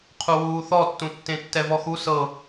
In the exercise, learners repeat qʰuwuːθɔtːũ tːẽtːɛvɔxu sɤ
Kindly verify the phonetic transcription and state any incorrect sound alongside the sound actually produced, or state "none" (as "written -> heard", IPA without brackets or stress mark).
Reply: none